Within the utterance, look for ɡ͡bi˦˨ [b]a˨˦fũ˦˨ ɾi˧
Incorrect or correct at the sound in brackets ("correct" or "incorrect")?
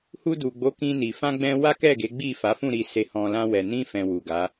incorrect